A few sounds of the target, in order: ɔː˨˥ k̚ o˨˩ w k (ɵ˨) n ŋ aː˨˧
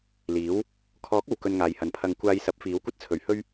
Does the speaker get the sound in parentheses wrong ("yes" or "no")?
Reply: yes